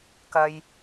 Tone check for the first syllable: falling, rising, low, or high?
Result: low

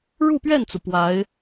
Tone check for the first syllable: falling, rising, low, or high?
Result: falling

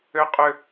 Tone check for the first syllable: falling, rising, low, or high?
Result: high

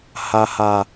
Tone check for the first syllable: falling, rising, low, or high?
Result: low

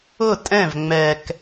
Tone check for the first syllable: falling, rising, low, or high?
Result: falling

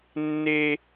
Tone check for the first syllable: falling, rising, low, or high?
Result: high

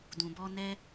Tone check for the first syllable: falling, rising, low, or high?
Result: low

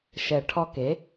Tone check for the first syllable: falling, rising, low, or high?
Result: low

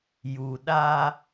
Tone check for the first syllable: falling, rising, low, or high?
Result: low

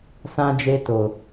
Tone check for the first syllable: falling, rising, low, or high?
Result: high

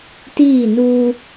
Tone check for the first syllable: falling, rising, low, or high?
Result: falling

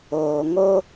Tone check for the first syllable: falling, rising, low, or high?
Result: low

